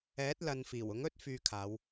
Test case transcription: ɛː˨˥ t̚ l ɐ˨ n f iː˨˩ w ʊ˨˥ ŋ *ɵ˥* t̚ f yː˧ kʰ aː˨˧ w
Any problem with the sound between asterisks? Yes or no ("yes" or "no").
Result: no